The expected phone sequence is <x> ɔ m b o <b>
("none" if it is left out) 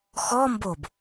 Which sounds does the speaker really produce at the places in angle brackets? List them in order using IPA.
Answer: x, b

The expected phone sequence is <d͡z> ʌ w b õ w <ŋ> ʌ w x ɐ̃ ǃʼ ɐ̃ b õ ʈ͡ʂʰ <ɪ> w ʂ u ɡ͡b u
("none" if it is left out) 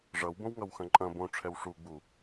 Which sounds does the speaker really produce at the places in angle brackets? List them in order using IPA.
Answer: ʐ, ŋ, ɛ

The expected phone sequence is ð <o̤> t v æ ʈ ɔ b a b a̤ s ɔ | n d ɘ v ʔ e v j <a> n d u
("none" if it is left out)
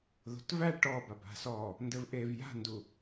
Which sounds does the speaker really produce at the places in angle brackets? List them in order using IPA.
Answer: o̤, a̤

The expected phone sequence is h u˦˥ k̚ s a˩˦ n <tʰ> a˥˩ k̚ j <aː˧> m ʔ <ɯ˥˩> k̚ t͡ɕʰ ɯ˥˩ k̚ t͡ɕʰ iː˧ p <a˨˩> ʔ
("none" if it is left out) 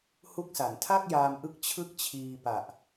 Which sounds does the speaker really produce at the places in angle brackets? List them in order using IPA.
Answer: tʰ, aː˧, ɯ˦˥, a˨˩

